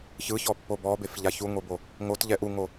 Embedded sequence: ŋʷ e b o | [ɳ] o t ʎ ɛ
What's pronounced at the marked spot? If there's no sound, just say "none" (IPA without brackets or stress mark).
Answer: ŋ